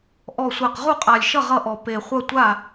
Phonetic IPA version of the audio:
ʔ ɔ˨˩ sʷ æ˨˩ q ʁ u˥˨ qʼ a˨˩ lʲ ʃ ʌ˥˨ ʁ ʌ˥˨ ʔ ɔ˨˩ p e˨˩ χʷ ʌ˥˨ tʷ a˥˨

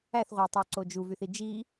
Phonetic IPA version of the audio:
æ θ ʁʷ æ tˤ o ǀ o d͡ʒ u v y θ i d͡ʒ i

